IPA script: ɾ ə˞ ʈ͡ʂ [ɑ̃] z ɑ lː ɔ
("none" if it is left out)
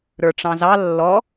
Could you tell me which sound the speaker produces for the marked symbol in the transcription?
ɑ̃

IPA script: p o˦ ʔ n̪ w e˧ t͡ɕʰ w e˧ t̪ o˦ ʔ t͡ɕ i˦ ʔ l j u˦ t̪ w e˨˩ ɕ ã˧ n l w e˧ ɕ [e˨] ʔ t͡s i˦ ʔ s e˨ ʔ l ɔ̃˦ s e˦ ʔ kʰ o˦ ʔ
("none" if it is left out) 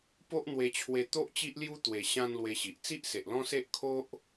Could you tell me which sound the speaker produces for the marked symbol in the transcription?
i˨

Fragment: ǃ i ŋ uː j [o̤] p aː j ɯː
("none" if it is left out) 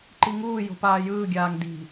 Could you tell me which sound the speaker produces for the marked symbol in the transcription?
o̤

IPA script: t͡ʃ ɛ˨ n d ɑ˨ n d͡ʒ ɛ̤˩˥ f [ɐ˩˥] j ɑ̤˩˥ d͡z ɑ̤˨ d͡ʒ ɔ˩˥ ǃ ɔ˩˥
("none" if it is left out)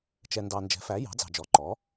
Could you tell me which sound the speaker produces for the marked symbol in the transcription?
æ˩˥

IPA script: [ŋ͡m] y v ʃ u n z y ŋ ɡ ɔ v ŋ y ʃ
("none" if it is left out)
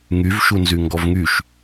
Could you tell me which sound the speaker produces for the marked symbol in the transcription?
ŋ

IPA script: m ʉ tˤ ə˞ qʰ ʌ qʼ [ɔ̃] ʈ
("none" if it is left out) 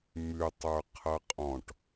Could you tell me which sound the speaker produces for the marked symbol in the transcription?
ɔ̃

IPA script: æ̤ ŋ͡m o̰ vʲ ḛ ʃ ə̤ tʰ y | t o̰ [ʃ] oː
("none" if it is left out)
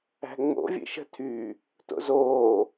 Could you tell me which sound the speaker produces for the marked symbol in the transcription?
z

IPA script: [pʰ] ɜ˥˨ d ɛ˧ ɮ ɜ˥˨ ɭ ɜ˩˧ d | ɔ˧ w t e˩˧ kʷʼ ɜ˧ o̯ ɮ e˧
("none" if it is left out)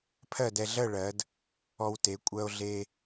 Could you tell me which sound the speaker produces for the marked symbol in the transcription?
pʰ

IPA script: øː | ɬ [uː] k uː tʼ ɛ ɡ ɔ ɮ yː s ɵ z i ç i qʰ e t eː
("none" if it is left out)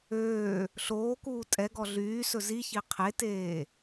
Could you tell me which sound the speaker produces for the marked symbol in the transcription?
oː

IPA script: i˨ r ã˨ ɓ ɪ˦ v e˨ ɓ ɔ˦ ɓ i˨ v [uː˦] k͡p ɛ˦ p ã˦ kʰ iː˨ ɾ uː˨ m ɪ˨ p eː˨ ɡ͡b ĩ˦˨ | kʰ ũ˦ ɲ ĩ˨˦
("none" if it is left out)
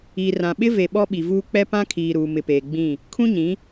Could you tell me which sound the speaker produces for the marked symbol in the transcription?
uː˦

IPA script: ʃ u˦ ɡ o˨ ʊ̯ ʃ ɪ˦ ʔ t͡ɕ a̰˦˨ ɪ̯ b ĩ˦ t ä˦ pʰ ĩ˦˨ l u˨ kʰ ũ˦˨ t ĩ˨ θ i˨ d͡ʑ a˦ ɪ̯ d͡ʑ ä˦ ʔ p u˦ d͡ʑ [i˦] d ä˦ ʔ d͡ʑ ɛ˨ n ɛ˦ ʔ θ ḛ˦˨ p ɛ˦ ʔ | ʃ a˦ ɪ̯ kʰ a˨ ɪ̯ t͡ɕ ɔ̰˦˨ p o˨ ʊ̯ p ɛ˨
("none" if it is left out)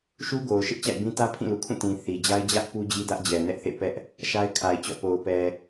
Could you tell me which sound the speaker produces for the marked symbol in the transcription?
i˦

